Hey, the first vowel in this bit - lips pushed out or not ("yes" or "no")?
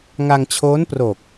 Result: no